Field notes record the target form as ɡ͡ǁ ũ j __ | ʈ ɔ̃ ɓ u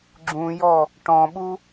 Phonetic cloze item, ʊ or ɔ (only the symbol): ɔ